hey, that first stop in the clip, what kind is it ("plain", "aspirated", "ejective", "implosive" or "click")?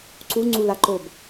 click